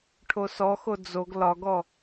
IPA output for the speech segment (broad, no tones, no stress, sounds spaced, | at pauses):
ʈʰ o s ɔ x o d͡z o ɡ l ɒ ɡ ɔ